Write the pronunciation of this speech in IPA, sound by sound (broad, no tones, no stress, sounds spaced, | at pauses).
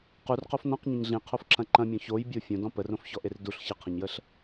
q u r q o f n ɔ̃ q ɲ ɐ̃ ɲ ɮ ĩ qʰ o f ǁ ɐ̃ ǃ ɐ̃ mʲ ɔ̃ ç o j bʲ o fʲ õ d ɔ̃ p ə r õ f ç ɔ ʔ e r d u ɬ ç ə qʰ ɐ̃ ɲ j ə ɬ